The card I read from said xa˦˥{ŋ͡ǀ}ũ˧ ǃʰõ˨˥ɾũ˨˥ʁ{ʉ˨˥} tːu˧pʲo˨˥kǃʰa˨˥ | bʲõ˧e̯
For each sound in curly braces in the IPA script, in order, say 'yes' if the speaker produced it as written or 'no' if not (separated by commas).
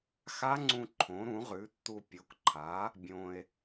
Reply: yes, yes